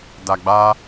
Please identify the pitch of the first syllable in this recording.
low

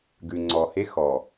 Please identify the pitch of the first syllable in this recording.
low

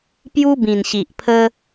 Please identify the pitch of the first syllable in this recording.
high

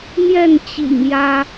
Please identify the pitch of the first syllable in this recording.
falling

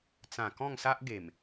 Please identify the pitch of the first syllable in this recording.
low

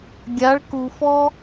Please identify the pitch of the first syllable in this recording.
rising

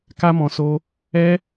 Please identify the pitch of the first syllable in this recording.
high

